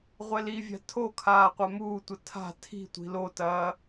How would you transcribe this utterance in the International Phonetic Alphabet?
ʁʷ ɛ l i vʲ a̤ tʰ o kʰ aː qʷ a m uː tʷ ɐ tʰ a̤ tʰ i̤ tʷ i̤ l o t ɐː

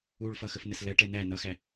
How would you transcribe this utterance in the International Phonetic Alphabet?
u ɭ f ʌ x ə f n ə s l ɜ ʈ ɛ n æ n ʌ x æ

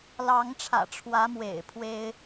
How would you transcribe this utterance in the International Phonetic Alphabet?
l ɑ˧˥ ŋ ʈ͡ʂʰ ä̰˨˩ ʈ͡ʂʰ w ä˧˥ m w ḛ˨˩ ɪ̯ pʰ w e˥ ɪ̯

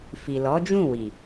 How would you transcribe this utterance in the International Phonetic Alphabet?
f i˨ l ɔ˨˦ d͡ʒ ũ˦˨ w i˨

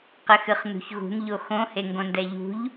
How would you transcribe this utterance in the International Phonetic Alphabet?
q ɘ x ɨ χ n ṳ ç ɣ ṳ n ʎ o x õ h e ŋ ɡ õ n d ɛ ʎ ṳ ʎ

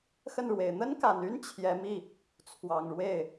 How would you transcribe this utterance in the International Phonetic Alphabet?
x ə˥˩ n ɻ w e˨˩ ɪ̯ n̪ ə˥ n k a˨˩ n y˥ n t͡ɕʰ j ɛ˧˥ m i˥˩ | t͡sʰ w ɑ˨˩ ŋ ɻ w e˥˩ ɪ̯

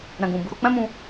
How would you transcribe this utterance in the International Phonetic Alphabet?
ɾ ɛ̃˨ ɡ ũ˨ b u˨˦ ɾ o˧ k͡p ɛ̃˦ m ũ˧

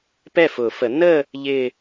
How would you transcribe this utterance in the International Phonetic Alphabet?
p ɛ˥˩ f ʊː˨˩˦ f ə˨˩˦ n ə˥˧ | ʎ ɪ˥˧

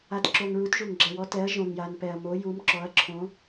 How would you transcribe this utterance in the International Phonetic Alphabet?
a˨ t ǁ o˨ ŋ ɹ u˨˥ t ʒ u˨ ŋ ɡ͡ǁ ɛ˨ w ɔ˨˥ t ɛ˨˥ ɐ̯ ʒ õ˨ ŋ j a˨ n p ɛ˨ ɐ̯ m o˨˥ j u˨˥ m ǁ ɔ˨˥ ɐ̯ ǁʰ õ˨˥

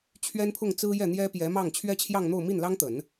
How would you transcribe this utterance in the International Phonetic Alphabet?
t͡ɕʰ ɥ ɛ˥ n pʰ ʊ˥˩ ŋ t͡s ɹ̩˥ j ɛ˥˩ n̪ j ɛ˥ p j ɛ˧˥ m ɑ˥˩ ŋ t͡ɕʰ ɥ ɛ˥ t͡ɕʰ j ɑ˥˧ ŋ n̪ o˥˧ ʊ̯ m i˥˩ n l ɑ˥ ŋ t̪ ə˨˩˦ n

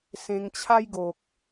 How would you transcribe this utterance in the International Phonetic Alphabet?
s ẽ˧ ŋ t͡ɕʰ a˦ j ɡ o˨ k̚

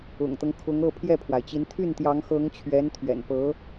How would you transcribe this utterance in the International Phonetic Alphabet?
ʊ̰˨˩ ŋ t̪ ɤ˦ ŋ kʰ ʊ˧˥ ŋ ɤ˥˧ pʰ j ɛ˥˩ pʰ w a˩ ɪ̯ t͡ɕ i˧˥ n t̪ʰ y˥˩ n t̪ j ɑ˧˥ ŋ x ɤ˧˥ ŋ t͡ɕʰ ɥ ɛ˧˥ n t̪ʰ ɥ ɛ̰˨˩ n p ɤ˧˥

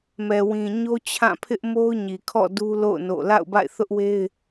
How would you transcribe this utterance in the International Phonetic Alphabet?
m ɛ˨ w ĩ˨ ɲ o˦ t͡ɕʰ ã˦˨ pʰ ɪ˦ ʔ m o˦ ʊ̯ ɲ i˨ kʰ ɔ̰˦˨ d u˦ l o̰˦˨ ʊ̯ n o̰˦˨ l a̰˦˨ ʊ̯ b a̰˦˨ ɪ̯ θ ʊ˦ ʔ w e˦ ɪ̯

